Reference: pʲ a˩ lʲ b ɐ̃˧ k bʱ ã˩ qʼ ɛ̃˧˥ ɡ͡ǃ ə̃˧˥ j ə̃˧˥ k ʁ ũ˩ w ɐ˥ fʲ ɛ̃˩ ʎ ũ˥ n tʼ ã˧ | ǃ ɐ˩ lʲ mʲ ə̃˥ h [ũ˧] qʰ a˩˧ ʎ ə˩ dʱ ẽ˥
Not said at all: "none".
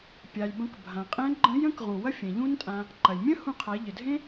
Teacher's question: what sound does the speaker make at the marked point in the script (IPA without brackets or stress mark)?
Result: ũ˧